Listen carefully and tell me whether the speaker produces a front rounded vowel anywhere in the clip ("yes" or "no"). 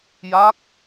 no